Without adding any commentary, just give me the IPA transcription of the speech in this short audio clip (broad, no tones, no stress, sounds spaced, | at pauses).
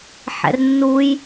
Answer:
ħ ɛ̰ r nː u j